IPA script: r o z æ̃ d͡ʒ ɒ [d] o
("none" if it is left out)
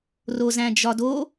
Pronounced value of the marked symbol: d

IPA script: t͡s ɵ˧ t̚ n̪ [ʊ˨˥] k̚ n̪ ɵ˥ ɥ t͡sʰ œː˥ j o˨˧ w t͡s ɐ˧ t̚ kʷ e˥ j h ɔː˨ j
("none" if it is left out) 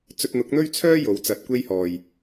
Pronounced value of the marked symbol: ʊ˨˥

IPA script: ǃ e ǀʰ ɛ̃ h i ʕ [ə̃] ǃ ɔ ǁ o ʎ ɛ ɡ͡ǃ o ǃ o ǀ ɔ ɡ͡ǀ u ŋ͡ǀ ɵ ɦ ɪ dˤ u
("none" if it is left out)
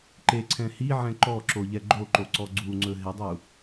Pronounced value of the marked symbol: ɛ̃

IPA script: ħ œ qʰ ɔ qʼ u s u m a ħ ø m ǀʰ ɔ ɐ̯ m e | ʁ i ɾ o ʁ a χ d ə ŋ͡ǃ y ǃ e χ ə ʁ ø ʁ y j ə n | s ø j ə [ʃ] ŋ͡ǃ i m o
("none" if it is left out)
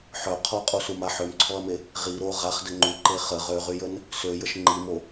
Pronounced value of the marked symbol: ʃ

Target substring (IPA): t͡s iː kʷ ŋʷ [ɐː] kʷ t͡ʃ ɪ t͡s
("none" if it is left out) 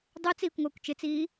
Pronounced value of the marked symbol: ɐː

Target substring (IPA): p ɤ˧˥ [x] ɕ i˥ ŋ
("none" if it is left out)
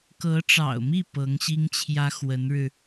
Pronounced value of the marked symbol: ŋ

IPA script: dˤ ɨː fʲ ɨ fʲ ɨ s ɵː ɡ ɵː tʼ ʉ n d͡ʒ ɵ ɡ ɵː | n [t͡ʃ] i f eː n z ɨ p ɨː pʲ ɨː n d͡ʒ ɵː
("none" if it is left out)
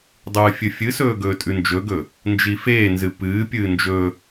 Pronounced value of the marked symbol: d͡ʒ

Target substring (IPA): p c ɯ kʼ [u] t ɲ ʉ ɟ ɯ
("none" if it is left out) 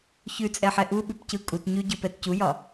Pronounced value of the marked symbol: u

